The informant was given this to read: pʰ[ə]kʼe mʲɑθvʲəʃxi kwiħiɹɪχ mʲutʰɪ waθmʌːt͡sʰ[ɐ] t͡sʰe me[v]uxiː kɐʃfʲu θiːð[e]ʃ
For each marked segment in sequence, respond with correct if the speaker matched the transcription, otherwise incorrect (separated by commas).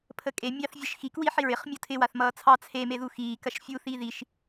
correct, incorrect, incorrect, incorrect